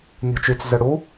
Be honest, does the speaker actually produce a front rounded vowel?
yes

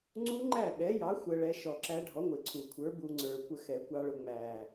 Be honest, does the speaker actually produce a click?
yes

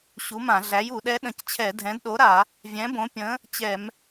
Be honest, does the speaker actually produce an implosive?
yes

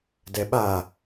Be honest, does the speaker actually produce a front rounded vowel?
no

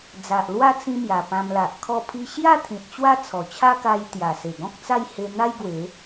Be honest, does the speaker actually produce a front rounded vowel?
no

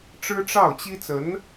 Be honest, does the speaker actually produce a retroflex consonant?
yes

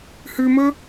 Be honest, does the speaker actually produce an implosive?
no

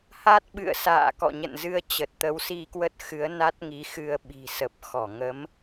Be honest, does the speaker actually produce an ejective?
no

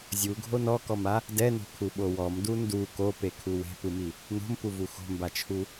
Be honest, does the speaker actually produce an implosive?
yes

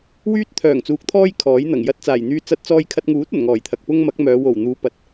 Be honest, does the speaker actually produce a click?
no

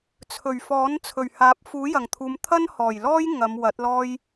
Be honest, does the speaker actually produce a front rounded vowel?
no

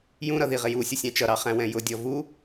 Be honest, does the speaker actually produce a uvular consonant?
yes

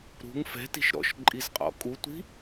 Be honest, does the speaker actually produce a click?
yes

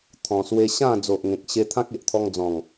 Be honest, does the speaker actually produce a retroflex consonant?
no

